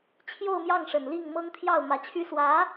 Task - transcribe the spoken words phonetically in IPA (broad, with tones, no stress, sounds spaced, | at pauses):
t͡ɕʰ j o˥˧ ʊ̯ m j ɑ˥˩ ŋ ʂ ə˨˩ n l i˥˩ ŋ m ɤ˥ ŋ t̪ʰ j ɑ˥˩ ʊ̯ m ä˧˥ t͡ɕʰ y˥ s w ä˧˥